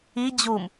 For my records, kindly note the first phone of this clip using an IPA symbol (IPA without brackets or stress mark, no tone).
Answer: i